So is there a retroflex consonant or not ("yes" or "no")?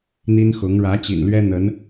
yes